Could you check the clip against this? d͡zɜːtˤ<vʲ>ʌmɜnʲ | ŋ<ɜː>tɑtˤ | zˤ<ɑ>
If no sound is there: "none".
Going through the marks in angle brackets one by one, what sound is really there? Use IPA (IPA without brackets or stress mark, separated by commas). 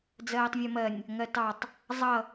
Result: vʲ, ɜ, ʌ